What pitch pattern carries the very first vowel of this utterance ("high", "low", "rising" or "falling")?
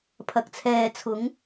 low